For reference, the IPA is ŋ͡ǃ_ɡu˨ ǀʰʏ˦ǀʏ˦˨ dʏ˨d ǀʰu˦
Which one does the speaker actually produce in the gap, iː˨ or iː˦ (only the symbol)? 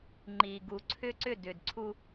iː˨